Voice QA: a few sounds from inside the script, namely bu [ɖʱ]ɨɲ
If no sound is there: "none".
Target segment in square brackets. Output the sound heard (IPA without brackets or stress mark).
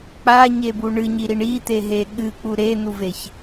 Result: ɳ